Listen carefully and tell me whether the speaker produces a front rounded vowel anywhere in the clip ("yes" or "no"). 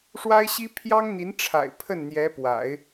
no